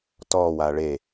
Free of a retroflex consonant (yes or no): no